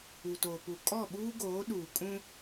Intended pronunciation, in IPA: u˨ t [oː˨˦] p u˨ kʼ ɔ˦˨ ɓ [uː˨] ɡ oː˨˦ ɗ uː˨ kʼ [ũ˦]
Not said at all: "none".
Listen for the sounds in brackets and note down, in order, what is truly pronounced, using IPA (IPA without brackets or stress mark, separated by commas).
oː˨, uː˦, ũ˦